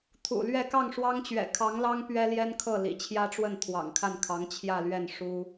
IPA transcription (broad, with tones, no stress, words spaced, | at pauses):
t̪ʰṵ˨˩ lɥɛ˥˧ kɑ˥˩ŋʂwɑ˥ŋt͡ɕɥɛ̰˨˩ kʰɑ˧˥ŋlɑ˥ŋ pɥɛ˥ljɛ˥nkʰɤ˥˩ lḭ˨˩t͡ɕʰjä˥ʈ͡ʂwə˥˩n t̪ʰwɑ̰˨˩ŋkʰa˥˩nkʰɑ˧˥ŋ t͡ɕʰjä˥˧lɥɛ˥˩n ʂu˥